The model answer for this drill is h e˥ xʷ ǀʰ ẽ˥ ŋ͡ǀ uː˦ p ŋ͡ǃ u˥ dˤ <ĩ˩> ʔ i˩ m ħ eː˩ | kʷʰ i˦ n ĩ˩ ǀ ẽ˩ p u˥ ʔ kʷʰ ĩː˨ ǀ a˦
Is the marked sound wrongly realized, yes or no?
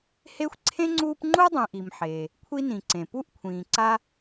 yes